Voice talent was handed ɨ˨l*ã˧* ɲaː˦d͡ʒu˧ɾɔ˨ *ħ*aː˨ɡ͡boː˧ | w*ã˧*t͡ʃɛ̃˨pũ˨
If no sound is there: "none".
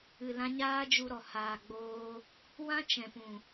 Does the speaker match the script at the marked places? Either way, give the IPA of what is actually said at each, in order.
ã˧, h, ã˦

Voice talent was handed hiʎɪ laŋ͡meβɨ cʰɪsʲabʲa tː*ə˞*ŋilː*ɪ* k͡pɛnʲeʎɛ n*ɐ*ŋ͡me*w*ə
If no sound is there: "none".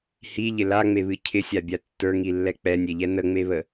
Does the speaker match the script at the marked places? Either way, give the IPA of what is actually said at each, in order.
ə˞, ɛ, ə, β

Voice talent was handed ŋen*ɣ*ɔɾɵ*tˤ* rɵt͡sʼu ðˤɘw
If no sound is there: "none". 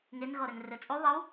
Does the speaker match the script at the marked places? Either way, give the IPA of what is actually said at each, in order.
ɣ, n

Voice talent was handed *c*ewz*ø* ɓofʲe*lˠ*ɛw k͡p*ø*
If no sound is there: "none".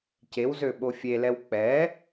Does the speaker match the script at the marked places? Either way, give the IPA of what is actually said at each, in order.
c, ø, l, ɛ

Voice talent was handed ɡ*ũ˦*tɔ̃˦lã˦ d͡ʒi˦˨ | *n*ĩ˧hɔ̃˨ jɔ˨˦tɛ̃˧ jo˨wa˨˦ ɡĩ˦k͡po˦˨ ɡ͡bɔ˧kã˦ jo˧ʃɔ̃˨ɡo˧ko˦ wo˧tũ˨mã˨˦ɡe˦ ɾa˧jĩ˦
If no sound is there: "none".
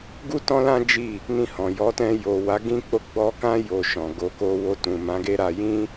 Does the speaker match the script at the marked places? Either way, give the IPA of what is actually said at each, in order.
u˦, n

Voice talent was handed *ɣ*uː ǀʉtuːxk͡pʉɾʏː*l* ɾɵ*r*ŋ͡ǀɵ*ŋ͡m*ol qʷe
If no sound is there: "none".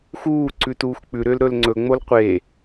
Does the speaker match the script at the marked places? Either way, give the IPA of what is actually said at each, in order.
x, l, l, ŋ͡m

